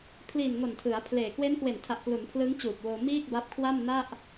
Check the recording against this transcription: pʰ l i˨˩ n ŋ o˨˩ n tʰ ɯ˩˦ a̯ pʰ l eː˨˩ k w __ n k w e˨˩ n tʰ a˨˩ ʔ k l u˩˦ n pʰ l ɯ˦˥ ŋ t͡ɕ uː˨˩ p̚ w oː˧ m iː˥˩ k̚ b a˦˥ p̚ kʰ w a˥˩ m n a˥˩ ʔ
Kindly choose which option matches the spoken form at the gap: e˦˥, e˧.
e˦˥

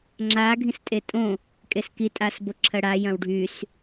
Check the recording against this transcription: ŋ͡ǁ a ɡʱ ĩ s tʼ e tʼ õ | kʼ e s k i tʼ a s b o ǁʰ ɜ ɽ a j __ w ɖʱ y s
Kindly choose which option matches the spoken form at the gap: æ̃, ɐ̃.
ɐ̃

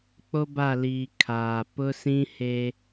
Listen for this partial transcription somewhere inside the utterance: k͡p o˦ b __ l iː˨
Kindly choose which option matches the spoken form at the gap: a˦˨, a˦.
a˦˨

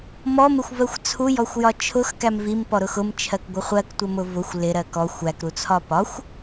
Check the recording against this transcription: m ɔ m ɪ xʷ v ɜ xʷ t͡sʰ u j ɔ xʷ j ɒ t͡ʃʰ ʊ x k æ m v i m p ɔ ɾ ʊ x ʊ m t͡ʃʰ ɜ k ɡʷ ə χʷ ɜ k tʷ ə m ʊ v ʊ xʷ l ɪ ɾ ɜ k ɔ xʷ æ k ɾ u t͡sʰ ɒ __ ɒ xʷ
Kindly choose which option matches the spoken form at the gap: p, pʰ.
p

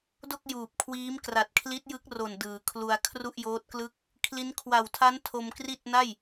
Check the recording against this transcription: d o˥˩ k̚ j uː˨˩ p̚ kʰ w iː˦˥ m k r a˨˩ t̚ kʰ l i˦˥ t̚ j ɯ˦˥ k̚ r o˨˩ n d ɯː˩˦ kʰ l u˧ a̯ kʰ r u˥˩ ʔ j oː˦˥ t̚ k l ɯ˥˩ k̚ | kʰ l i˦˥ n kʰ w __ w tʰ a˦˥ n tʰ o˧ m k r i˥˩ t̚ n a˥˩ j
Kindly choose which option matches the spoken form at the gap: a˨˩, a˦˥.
a˨˩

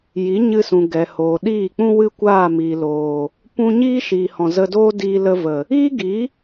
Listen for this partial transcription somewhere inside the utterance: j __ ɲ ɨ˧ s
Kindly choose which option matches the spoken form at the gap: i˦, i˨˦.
i˨˦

